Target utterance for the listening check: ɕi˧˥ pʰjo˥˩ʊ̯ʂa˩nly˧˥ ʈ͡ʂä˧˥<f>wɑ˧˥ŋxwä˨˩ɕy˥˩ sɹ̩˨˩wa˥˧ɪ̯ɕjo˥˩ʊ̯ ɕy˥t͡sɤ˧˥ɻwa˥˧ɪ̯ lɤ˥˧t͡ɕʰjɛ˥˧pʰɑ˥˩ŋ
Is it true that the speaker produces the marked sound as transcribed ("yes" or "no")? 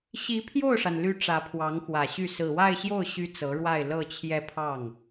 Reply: no